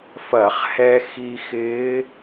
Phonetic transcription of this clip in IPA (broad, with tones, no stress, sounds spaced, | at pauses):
f ɐ˧˩˧ χ h ɛ˧ x i˧ x ɪː˧˥